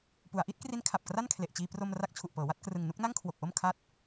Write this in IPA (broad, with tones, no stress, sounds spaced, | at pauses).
p u˩˦ a̯ ʔ i˦˥ t̚ k r i˦˥ n kʰ a˨˩ p̚ k r a˥˩ n kʰ l e˨˩ ʔ t͡ɕ iː˧ p r o˧ m r a˦˥ k̚ t͡ɕʰ u˨˩ ʔ p ɤː˩˦ w a˥˩ t̚ k r ɯ˨˩ ŋ n u˦˥ k̚ n a˥˩ ŋ kʰ w o˨˩ k̚ ʔ o˥˩ m kʰ a˦˥ t̚